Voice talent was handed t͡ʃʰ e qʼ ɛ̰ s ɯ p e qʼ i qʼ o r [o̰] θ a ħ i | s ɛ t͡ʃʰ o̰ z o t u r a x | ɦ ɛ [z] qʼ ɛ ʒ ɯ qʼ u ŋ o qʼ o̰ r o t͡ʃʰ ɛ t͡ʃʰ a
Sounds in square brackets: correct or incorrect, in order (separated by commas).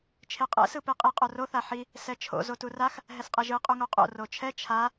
incorrect, incorrect